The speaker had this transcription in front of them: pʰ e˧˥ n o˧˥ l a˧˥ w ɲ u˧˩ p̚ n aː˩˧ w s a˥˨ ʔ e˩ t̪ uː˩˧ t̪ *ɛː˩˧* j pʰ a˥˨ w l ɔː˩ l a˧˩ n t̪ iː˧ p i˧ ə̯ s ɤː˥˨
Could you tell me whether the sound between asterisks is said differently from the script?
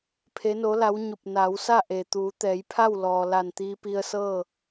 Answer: no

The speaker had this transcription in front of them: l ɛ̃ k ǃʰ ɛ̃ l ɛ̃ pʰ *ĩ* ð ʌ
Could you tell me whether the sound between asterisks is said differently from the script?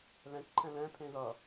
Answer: yes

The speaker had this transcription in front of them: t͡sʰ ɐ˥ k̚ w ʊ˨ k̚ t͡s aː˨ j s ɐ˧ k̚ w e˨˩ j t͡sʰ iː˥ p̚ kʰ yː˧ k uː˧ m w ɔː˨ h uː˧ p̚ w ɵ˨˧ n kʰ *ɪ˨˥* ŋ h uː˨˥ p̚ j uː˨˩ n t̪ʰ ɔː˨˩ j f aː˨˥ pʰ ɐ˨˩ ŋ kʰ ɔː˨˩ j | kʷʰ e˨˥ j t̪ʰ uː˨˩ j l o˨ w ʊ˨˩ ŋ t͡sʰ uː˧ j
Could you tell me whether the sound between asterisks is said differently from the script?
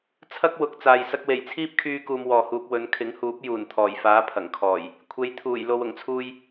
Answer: no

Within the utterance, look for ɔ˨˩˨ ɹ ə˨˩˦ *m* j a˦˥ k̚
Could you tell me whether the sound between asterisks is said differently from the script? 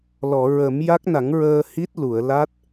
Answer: no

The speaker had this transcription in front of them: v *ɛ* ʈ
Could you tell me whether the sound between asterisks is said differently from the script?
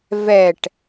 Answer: no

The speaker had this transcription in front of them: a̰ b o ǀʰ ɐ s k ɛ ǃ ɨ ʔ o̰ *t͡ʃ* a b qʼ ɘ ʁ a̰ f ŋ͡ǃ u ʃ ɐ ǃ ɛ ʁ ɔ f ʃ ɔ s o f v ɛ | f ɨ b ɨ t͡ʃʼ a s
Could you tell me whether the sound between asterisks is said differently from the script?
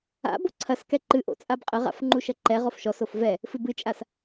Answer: yes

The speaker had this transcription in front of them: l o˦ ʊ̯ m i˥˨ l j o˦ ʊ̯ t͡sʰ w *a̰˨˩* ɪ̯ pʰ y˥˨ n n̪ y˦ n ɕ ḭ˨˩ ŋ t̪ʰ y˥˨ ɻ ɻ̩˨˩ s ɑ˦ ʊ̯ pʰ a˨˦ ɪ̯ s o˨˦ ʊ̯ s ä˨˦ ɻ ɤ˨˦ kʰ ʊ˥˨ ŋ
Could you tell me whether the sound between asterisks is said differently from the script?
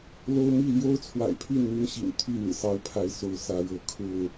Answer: no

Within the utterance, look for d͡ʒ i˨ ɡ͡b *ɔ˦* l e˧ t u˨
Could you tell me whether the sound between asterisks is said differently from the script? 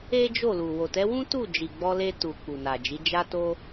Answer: yes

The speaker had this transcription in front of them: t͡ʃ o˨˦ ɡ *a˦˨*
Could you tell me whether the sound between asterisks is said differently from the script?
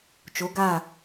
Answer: no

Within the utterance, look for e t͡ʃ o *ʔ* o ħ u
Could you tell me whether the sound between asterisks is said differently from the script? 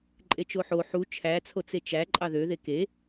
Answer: yes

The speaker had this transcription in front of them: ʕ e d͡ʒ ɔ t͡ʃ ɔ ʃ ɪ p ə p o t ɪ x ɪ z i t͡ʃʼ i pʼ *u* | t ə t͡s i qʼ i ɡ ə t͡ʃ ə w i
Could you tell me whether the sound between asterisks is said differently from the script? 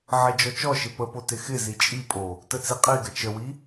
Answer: yes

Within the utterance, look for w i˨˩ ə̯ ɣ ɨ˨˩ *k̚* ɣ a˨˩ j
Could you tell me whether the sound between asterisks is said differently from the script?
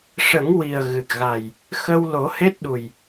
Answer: no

